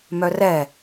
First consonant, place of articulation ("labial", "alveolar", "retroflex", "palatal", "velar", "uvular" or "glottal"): labial